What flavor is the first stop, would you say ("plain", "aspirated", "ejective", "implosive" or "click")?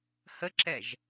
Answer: click